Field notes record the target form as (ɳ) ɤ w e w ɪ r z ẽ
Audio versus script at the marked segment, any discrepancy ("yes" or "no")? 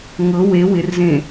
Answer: yes